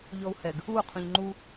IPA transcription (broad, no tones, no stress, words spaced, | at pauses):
ʎɔu̯hɛɡ | u qʰũʎŋ͡ǃu